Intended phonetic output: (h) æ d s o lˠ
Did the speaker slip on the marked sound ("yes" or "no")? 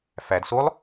yes